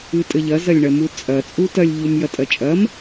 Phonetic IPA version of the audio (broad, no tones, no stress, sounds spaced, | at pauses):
ɨ tʼ ɘ ʎ ɐ z ɐ lʲ ɳ ɐ m u t͡sʼ ɐ t͡sʼ u t ɐ lʲ ʎ u m j ɐ tʼ ɐ t͡ʃʼ ɐ m